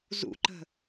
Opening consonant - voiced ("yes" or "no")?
yes